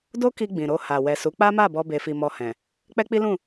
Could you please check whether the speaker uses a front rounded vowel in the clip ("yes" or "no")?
no